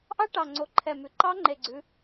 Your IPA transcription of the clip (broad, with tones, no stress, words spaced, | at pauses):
ʔɑ˦˥ʈɑ˨˩ŋ͡ǀo˩˧ ǃʰɛ˨˩mʉ˩˧ ǃɑ˦˥ŋ͡ǃe˨˩ɡ͡ǀʉ˩˧